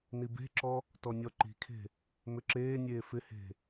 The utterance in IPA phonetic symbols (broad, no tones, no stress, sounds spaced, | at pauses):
n i b e̤ ǁ ɔ | t ɔ nʲ ɔ ǃ i̤ kʰ e̤ | m ʏ ǁ eː nʲ eː f ɪ h e̤